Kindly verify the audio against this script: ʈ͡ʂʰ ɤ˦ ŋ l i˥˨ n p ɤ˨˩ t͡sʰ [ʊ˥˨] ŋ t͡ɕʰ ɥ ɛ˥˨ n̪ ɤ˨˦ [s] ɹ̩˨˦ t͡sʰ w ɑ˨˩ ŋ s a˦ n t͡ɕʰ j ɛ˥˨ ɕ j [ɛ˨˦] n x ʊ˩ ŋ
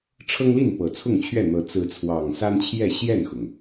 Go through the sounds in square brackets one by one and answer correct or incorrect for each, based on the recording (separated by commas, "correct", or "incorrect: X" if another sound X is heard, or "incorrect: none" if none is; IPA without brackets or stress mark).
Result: correct, incorrect: t͡s, incorrect: ɛ˥˨